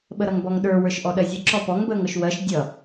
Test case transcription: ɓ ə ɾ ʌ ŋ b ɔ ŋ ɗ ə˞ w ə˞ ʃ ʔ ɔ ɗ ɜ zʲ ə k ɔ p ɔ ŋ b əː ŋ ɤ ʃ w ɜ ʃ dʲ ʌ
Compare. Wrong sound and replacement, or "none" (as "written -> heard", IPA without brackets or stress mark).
k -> ǁ